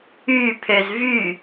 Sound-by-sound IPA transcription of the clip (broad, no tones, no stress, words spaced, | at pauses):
y pʰøzvy